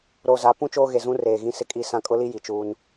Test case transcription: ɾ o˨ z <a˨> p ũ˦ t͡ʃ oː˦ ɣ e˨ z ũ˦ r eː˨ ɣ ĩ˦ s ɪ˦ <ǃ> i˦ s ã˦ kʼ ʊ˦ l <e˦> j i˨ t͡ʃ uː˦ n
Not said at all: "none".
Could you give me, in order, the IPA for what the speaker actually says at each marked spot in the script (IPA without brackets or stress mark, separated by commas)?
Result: a˨˦, kʼ, i˦